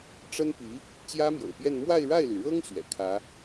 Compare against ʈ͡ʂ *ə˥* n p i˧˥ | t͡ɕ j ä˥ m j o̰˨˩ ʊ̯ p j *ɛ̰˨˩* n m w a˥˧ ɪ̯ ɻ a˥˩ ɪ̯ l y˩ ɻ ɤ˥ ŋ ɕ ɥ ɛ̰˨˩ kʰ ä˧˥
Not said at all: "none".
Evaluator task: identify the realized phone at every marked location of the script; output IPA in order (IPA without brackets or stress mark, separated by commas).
ə˥, ɛ˥˧